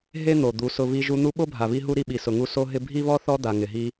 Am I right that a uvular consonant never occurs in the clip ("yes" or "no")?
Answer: yes